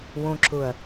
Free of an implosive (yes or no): yes